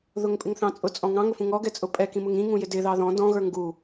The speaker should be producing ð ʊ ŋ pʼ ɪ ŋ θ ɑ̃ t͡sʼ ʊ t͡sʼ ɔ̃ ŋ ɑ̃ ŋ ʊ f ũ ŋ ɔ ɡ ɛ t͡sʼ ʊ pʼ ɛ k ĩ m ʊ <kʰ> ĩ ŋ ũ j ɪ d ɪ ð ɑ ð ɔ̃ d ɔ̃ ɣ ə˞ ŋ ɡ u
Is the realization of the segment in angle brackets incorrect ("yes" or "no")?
yes